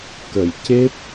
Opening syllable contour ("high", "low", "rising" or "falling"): low